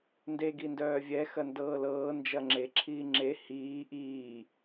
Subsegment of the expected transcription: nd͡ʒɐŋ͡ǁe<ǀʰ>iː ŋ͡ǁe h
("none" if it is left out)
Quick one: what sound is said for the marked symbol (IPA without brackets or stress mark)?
ǁʰ